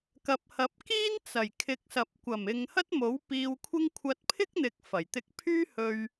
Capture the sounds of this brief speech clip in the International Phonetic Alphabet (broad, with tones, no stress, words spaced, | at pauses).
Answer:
kɐ˨p̚hɐ˨˥p̚kiː˥n t͡sɐ˨˩jkʰɪ˨˥k̚sɐ˨p̚ kʷɐ˨˩mɪ˨ŋ hɐ˥t̚mo˨˥w piː˧wkʷʰɪ˥ŋ kʷʰɐ˧t̚pʰɪ˥k̚n̪ɪ˨˥k̚ fɐ˨˩jt̪ɪ˧k̚pʰyː˥hɵ˧ɥ